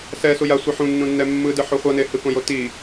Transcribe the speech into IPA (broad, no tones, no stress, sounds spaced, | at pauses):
s ɛ s u j a sʷ ɯ ħ ũ nː ũ nː ɛ mː ɯ d ɯ ħ o χʷ ʌ n e h ɯ k õ j o t i